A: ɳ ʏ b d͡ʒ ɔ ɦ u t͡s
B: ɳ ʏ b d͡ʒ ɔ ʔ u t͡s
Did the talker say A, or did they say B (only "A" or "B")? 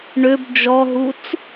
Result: A